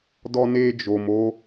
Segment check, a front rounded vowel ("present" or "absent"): absent